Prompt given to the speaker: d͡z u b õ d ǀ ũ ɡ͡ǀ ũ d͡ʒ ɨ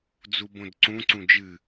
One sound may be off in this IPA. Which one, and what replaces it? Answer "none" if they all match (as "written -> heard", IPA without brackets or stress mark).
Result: ɡ͡ǀ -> ǀ